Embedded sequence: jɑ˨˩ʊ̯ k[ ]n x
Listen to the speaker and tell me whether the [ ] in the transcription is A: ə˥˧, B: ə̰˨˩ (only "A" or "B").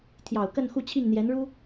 A